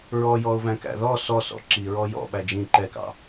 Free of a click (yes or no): no